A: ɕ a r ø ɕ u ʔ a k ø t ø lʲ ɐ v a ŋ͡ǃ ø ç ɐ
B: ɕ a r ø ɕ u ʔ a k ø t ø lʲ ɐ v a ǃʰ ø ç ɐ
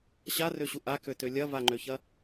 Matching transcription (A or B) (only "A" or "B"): A